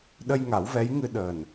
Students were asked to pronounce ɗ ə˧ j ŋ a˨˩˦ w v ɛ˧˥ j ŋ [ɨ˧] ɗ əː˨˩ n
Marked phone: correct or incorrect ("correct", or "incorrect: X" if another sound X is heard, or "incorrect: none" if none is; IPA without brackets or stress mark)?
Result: correct